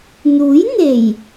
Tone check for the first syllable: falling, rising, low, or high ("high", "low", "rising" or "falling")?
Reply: rising